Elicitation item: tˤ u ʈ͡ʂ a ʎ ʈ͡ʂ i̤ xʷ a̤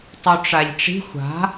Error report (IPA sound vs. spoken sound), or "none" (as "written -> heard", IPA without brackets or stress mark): none